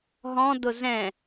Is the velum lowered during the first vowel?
yes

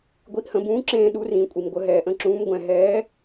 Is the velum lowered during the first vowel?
no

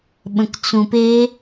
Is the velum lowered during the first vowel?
yes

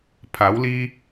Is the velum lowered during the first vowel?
no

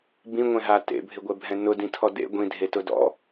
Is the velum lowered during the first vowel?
yes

